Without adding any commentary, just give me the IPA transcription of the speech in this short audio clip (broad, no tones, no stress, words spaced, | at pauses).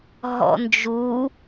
ɦɔ̰nd͡ʒu